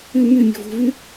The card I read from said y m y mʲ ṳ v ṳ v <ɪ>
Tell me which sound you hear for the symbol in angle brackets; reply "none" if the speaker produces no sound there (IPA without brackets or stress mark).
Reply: y